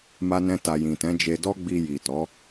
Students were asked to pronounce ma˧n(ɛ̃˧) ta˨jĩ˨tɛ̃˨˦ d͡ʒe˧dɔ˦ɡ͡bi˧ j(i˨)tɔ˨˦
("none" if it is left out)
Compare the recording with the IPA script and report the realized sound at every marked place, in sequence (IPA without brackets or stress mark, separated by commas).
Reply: ɛ̃˧, i˨